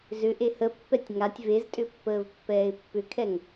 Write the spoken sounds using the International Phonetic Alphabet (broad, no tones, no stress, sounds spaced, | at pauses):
z ʏ ʔ e h ə pː ɛ tʲ ŋ a tʲ v e z tʼ ʏ pː əː v pː ɛː ɪ̯ pː ʏ kʰ ɛ ŋ